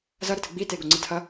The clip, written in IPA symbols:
z ɐ ɾ ə t ɨ ɡ͡b i t e ɡ o ŋ͡ǀ ɨ tʰ ɐ

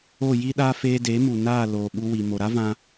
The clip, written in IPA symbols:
o˦˨ j i˦ ɗ aː˦ f eː˧ d e˨˦ m u˨ n aː˦˨ l oː˨ ɓ u˧ w i˨ m o˨ ɾ a˦ v ã˧

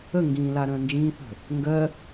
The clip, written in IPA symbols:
ə ŋ ɡ ĩː l a ɾ ə̃ː n d͡ʒ ĩː θ ə̤ | ŋ ɡ ɜ

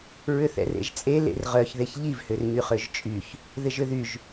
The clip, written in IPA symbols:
ɹ ʏ θ ɛ̰ r ḛ ʒ t͡sʼ e l ḛ r ʁ œ ç ð e ç ʎ i v h ʏ r ɲ y χ ø ʒ t͡ʃʼ y ç | ð ɪ ʒ ʏ ð y ʒ

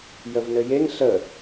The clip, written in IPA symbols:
j ə v n ɘ j e ŋ ɬ ə

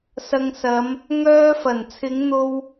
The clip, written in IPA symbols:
s ɐ˧ ŋ s ɐ˨˧ m | ŋ œː˧ f ɐ˨˩ n t͡sʰ ɪ˨˧ ŋ n̪ o˧ w

